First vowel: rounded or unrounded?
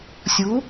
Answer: rounded